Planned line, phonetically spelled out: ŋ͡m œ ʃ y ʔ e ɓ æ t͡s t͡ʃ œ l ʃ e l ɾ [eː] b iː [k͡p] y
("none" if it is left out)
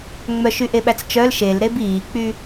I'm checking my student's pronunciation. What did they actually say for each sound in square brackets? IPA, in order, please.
e, k͡p

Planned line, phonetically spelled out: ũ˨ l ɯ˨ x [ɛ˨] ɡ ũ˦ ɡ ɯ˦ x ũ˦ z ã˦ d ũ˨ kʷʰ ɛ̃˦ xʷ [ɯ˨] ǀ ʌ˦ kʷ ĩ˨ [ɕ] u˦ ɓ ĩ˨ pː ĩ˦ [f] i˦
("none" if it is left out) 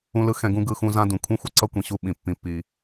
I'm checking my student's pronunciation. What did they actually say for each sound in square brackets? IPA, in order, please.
ɛ̃˨, ɯ˨, ɕ, pː

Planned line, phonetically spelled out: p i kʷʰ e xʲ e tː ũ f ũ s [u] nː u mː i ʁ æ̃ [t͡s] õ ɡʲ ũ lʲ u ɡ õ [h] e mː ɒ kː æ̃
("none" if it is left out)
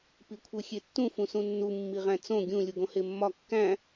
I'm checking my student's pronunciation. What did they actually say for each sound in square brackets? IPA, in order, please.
ũ, t͡s, h

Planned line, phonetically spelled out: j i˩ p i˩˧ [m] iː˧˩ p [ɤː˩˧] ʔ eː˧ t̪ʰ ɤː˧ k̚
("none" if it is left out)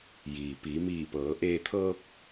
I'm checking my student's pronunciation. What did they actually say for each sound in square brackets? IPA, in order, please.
m, ɤː˩˧

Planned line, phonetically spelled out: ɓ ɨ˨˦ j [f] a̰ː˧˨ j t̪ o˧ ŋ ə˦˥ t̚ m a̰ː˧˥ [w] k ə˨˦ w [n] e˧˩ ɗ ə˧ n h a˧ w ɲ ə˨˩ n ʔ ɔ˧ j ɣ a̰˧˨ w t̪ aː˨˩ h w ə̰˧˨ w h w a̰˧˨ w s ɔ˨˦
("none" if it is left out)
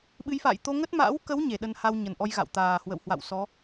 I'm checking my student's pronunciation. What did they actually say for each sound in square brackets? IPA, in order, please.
f, w, ɲ

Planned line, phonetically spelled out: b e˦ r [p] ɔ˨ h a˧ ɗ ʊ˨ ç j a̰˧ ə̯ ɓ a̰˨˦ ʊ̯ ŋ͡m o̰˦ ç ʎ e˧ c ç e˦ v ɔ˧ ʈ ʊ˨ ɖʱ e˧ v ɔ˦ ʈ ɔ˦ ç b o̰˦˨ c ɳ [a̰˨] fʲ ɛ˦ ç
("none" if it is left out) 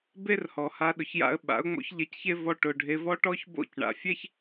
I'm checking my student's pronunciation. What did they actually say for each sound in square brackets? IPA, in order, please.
h, a̰˨

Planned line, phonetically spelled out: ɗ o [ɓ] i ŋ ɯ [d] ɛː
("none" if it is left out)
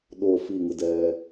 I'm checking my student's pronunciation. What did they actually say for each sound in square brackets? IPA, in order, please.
f, d

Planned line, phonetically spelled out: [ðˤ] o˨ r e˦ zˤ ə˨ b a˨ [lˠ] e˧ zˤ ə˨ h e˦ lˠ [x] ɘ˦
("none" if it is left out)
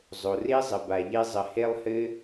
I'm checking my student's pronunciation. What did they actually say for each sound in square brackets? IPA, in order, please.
zˤ, ʎ, h

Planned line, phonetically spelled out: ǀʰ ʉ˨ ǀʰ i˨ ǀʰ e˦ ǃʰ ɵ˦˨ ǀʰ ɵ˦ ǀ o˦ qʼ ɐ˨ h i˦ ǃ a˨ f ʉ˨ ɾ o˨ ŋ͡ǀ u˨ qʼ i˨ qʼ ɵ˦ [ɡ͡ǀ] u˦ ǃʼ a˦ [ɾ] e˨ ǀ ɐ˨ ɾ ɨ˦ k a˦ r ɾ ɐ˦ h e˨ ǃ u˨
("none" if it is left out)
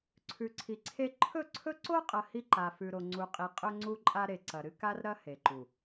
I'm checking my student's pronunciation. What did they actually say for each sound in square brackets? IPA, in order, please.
ŋ͡ǀ, ɾ

